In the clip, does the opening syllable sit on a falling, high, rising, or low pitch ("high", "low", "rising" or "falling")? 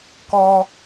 high